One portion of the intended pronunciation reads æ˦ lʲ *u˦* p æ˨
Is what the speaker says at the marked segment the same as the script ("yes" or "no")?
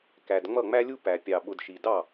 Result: yes